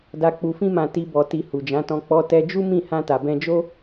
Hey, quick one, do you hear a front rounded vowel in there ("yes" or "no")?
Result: no